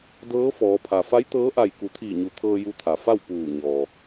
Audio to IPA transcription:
d ɤː˧˥ f ɔː˩˧ pʰ a˩ f a˧˥ j t̪ ɤː˧˥ ʔ a˧˩ j k u˩˧ t̪ʰ iː˧˩ ɲ u˩˧ t̪ʰ ɤː˧ j u˧ t̪ʰ a˩ f a˥˨ w p uː˧˩ ɲ ɔː˩

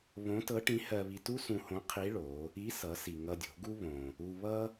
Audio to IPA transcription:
β õ˧˥ t ɤ˧˥ ʈ ĩ˧˥ h ɜ˧ β i˧ t u˥ s ũ˧ h õ˧˥ qʰ i˧˥ ɭ o˩˧ | i˧˥ s ʌ˩˧ s i˩ ŋ ʌ˧ dʲ o̤˩˧ ɡ u˥ β õ˩ | u˧ β ʌ˥

